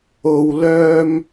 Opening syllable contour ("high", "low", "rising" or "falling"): low